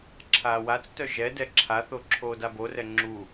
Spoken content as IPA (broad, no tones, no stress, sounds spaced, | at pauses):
ǁʰ aː w a t͡s t œ ʒ ɛ d ɛ ǁʰ a θ o ǁʰ oː d a b o r ɛ ŋ͡ǁ u